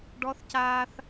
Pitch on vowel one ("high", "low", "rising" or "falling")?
high